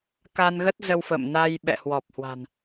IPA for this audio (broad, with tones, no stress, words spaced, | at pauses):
ka˧nɣə˦˥t̚zə˧w fə̰˧˨mna˧j ɓɛ̰˧˨hwɔ˨˩p̚hwa̤˨˩n